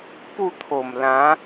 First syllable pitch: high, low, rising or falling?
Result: falling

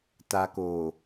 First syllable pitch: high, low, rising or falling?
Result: low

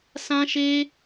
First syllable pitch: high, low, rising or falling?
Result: high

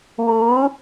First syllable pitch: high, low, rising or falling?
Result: rising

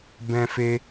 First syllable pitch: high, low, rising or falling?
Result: high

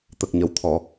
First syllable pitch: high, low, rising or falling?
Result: low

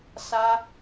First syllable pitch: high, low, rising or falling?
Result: high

